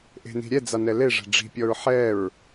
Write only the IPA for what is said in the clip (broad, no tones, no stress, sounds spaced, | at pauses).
ʔ e̤ n i̤ ɾʲ ɛ d͡z a n ɛ l e ʐ ɛ̤ ɖ͡ʐ i̤ pʲ ɔ ɹ ħ ɛ ɹ